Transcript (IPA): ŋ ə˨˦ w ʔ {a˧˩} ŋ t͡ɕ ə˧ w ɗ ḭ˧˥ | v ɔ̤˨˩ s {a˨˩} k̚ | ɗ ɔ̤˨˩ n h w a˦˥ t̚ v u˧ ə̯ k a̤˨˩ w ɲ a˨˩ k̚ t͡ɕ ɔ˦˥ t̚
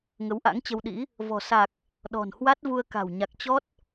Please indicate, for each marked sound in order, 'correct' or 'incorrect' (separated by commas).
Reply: incorrect, correct